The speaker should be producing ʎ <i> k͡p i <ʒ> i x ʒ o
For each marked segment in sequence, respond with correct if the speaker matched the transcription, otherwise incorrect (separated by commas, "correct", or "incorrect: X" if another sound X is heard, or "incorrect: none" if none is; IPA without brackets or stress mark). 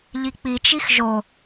correct, incorrect: t͡ʃ